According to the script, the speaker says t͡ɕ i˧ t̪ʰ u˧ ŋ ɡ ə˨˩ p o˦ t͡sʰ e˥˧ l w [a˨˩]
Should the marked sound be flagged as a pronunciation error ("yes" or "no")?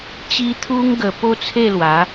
yes